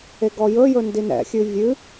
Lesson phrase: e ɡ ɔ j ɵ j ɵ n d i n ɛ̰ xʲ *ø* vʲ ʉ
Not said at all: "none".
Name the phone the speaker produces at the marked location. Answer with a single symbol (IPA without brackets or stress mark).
ʉ